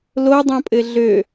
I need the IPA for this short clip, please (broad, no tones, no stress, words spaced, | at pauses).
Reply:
lodˤõpʼɘ ɮø